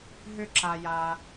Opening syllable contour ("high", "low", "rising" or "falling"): high